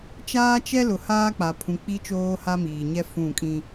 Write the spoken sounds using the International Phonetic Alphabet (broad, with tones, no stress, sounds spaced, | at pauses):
t͡ʃ aː˦ t͡ʃ ɛ˦ l ʊ˨ h aː˦ k͡p a˨ pʰ ũ˨ k͡p i˦ t͡ʃ oː˦ h a˦ m iː˨ ɲ ɛ˦ f ũ˦˨ kʼ ĩ˦